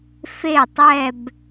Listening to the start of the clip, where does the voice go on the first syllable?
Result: falling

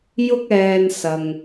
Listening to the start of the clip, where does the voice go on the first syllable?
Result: high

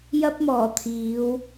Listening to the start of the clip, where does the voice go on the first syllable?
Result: high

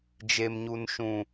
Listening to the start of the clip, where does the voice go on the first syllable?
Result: low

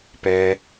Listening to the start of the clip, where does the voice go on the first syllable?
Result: low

